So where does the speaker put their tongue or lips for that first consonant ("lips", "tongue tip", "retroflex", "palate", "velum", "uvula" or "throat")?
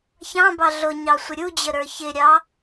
palate